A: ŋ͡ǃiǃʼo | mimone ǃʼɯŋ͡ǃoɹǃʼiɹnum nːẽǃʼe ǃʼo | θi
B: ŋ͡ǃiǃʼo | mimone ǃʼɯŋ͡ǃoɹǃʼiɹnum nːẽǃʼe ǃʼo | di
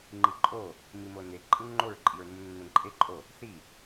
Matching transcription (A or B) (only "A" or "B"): A